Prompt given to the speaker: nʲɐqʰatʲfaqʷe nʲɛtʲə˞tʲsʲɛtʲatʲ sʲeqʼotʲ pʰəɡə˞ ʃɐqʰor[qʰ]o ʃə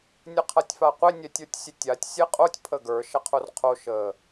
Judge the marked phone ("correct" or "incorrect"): correct